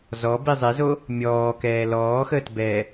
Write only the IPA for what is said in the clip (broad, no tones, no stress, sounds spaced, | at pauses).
z ɔ b i zˤ e z o | mʲ ɔː k ɛː l ɔː x əː t b ɛː